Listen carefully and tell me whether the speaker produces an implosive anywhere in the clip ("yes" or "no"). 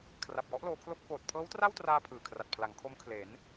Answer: no